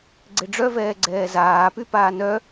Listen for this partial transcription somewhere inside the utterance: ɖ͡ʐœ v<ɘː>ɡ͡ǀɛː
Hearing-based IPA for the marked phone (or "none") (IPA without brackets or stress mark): ɛː